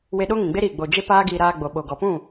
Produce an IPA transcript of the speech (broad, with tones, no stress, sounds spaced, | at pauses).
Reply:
w e˧ ɗ o˦ ŋ ĩ˨ ɡ͡b e˦ ɾ i˦˨ ɡ͡b o˧ d͡ʒ e˦ p aː˦ ɡ iː˧ ɾ aː˧ ɡ͡b o˨ ɓ o˨ ɡ ɔ˨ p ũ˦˨